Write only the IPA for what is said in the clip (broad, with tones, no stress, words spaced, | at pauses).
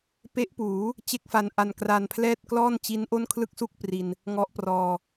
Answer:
pe˦˥ʔpuː˩˦ | t͡ɕe˥˩k̚fa˧nʔa˧n kra˧npʰlɛː˥˩t̚ klɔː˥˩n t͡ɕi˦˥n ʔo˥˩nkʰlɯ˥˩k̚su˥˩k̚ pri˧n | ŋɔ˦˥ʔprɔː˧